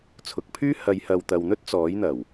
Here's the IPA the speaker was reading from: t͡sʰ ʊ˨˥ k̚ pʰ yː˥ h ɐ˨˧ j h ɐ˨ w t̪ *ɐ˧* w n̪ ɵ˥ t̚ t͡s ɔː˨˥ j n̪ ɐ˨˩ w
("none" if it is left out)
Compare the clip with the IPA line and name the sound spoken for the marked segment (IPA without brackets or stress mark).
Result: ɐ˨